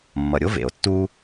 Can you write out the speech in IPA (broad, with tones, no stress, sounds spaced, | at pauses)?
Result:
mː ʌ˩ ɾʲ o˥ v ḛ˩ o̯ tː u˥